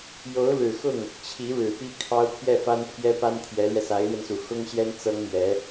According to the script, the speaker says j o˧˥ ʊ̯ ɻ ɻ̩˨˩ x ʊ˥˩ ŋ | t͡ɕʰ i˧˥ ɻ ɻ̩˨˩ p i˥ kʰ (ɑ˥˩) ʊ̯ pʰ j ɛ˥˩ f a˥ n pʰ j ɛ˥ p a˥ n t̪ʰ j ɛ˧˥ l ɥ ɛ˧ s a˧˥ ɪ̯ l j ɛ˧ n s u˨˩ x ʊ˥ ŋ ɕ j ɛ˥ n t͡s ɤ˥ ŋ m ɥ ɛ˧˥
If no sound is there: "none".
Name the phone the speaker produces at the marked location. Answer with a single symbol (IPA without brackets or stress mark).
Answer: ɑ˥